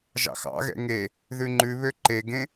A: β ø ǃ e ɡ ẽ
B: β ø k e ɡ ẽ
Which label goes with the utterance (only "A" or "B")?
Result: A